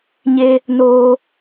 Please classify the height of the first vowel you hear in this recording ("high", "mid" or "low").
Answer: mid